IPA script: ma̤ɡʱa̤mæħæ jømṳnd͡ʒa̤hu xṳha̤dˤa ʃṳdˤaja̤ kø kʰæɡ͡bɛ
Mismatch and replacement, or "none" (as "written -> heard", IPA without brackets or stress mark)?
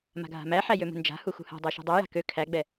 none